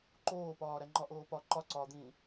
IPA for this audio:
ǃ oː p ɒː ɾ æ ŋ͡ǃ ɒ ʔ oː p ɒ ǃ ɒ ǀ ɒː d̪ ĩː

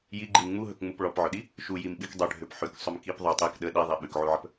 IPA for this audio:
j i ɡ͡ǃ i m ŋ͡m u ɦ ɵ k ŋ͡m u p ɭ ɔ p ʕ ɵ ɗ i | ʃ u j i m ɓ i k dˤ ø ɖʱ ø p ħ ʉ k sˤ ø m k i p ðˤ u tˤ i k ɗ ə ɗ i ðˤ i ɓ ʉ k ʕ u ʕ ə p

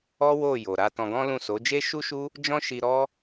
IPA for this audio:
ɔ˦ w o˦˨ j o˨ ɾ a˧ t ɔ̃˧ ɡ ɔ̃˦ l ũ˦˨ s o˨˦ d͡ʒ e˦ ʃ u˦ ʃ u˦ | d͡ʒ ɔ̃˦ ʃ i˧ ɾ ɔ˦

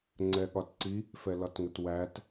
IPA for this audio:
ŋ͡ǀ ɛ ɠ ɒ t ǀ i | f ɛ l ɒ t ŋ ə t w æ t

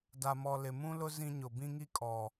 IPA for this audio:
d a˨ m ɔ˨ l ɪ˨ m ũ˦ l ʊ˦ z ĩ˦ ɲ ʊ˨ b ĩ˦ ŋ i˦ kʼ ɔ˨

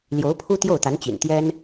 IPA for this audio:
l j o˧˥ ʊ̯ pʰ u˥ t̪ j o˥˩ ʊ̯ t̪ a˧˥ n t͡ɕ ḭ˨˩ n t̪ j ɛ˥ n

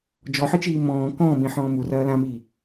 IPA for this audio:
d͡ʒ ɔ ħ ɨ t͡ʃ iː m ɔ̃ː k ɔ̃ː m ĩ ħ ɔ̃ː m u r ɐː l ã m iː

